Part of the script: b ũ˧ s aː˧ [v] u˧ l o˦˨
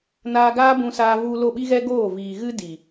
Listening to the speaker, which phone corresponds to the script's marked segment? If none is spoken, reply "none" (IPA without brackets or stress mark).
v